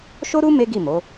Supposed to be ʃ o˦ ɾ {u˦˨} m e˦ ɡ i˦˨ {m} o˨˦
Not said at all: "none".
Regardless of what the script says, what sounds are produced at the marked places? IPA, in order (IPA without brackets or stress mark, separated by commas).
u˦, m